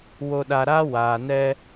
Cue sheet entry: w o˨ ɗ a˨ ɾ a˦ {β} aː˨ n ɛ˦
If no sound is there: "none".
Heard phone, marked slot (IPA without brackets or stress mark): w